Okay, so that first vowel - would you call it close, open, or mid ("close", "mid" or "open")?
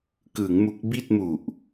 close